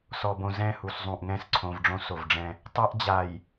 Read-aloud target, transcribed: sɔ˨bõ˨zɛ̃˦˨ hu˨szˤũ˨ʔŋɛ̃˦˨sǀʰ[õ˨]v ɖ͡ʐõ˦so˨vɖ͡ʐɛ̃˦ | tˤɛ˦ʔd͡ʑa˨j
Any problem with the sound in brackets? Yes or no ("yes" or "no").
no